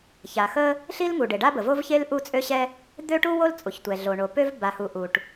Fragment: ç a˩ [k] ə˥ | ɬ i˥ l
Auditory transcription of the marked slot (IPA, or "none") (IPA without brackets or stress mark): x